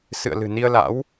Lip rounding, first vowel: unrounded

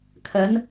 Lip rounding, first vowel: unrounded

